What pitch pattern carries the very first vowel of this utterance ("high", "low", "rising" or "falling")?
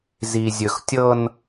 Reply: low